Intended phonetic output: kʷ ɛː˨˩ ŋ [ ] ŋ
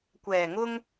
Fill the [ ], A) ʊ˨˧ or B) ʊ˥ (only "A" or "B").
B